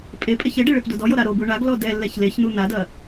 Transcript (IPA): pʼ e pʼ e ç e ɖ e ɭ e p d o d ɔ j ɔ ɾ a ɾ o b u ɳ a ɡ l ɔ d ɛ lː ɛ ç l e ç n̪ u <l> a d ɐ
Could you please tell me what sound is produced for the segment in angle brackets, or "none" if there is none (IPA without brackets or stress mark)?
n̪